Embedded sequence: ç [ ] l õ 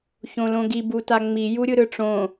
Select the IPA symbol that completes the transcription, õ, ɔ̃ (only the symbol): õ